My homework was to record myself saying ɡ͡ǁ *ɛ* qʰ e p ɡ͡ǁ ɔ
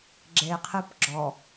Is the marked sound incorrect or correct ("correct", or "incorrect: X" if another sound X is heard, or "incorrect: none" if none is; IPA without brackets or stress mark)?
incorrect: e